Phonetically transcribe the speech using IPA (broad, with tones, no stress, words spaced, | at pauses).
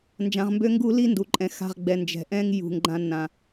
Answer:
nd͡ʒã˧ʁmbø˦ŋɡu˦li˦ ndu˨ǃʼɛ̃˨ xa̤˧ʁɡ͡bɛ˨ nd͡ʒɛ̤˨ʔɛ̃˦ŋ jṳ˨ŋɡ͡ǃã˧nːã˨